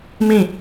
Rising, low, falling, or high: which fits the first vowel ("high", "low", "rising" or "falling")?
falling